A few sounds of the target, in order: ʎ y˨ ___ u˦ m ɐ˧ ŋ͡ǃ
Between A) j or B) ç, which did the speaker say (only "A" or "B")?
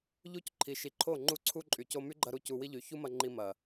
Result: B